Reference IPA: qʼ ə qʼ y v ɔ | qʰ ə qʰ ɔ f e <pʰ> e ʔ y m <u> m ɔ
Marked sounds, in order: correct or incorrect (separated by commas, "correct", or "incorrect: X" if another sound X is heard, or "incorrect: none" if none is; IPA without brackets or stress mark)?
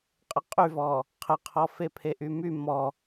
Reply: correct, incorrect: y